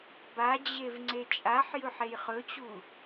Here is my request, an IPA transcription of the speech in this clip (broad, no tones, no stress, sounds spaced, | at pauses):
b a d͡ʑ e v ŋ͡ǀ e t͡ʃʼ a ħ j ɵ ħ e j χ ɵ t͡ɕ u